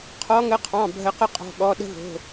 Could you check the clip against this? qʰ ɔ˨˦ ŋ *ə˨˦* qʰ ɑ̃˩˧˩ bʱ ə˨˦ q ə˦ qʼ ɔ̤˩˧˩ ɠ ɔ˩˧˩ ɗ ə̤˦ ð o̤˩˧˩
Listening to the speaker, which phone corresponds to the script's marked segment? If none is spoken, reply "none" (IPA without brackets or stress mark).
ə˨˦